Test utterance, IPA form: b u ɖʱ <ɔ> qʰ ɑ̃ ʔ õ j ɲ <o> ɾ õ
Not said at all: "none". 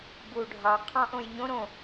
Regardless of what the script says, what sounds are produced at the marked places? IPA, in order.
ɑ, õ

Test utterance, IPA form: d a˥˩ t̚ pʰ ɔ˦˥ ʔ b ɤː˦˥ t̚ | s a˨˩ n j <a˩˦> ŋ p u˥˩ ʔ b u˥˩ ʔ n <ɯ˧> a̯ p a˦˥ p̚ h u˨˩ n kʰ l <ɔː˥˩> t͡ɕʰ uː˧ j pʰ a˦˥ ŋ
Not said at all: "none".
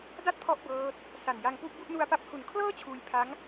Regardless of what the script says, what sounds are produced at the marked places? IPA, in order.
a˧, u˧, ɤː˥˩

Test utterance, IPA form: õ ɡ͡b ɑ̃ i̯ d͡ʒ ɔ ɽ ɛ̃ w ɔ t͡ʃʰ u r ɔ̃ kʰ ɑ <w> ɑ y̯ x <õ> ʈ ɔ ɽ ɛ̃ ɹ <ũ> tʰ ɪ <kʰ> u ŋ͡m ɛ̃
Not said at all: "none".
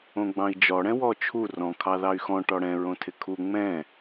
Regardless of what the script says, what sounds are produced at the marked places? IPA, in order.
ð, ɔ̃, õ, kʰ

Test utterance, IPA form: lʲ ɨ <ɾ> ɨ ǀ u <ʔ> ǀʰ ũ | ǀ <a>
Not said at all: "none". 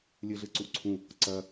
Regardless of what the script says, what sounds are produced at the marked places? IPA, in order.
ɮ, ʔ, ɐ

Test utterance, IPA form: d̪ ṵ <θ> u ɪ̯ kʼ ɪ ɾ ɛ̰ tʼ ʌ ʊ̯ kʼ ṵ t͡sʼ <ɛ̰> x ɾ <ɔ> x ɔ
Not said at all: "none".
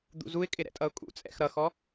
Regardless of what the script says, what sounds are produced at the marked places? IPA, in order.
z, ɛ̰, ʌ

